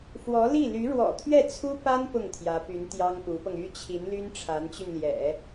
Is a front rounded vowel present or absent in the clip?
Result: present